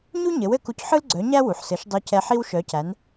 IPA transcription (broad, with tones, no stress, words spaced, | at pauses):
ɲu˥ɲɘ˩˥w ɘ˧ku˧cħɯ˥lɡ͡ǀœ˩˥ ɲæ˥wu˩ħsɘ˩˥ʃ dˤœ˧cɛ˧ ħi˥wʃœ˩˥cæ˩˥n